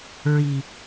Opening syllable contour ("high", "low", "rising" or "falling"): low